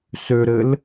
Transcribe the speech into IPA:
s ø ɾ ɘ l

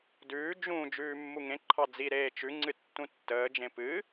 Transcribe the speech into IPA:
d ʉː d͡ʒ ũ d͡ʒ ʉː mː u ŋ ẽ ǃʰ ɑ d͡z i ɾ eː t͡ʃ ʉ ŋ͡ǀ ɨ tː ũ tː əː d͡ʒ ẽ p ɨ

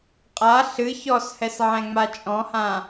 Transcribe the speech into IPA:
qʼ a ɬ ɨ ç ɔ s h ɛ s ʕ ɛ̃ ŋ͡m a t͡ʃʼ ɔ̃ h ã

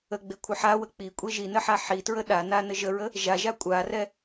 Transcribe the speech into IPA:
ə ɡ͡b e kʷʰ ʌ ħ a w ə k͡p i kʷʼ e ʒ i n ə ħ a ħ i t ɹ ə ɗ a n a n ə ʒ ə ɹ ə | ʒ a ʒ a kʷʼ a r ɛ

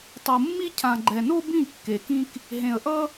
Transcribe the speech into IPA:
tˤ o˨ mː i˦ cʰ ã˨ ɡ͡ǃ ɛ˨ n o˦ b ĩ˦˨ kː e˨ k ĩ˦ k | ɦ ẽ˨ ə̯ ʔ ʌ˦

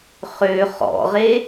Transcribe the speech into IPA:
χ ø χ ɔ̰ ʁ e

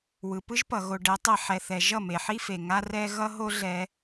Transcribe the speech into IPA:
w ɯ˨ p ɯ˦ ʒ p ʌ˨ ɣ o˧ ɖ ɛ˨˦ tˤ ɛ˧ ħ ɛ˧ θ ɛ˧ ʒ ʌ˦˨ m e˨ ħ i˦ f e˨ ŋ a˦ r ɛ˦ ɣ ʌ˦ ɦ o˦ ɮ ɛ˧

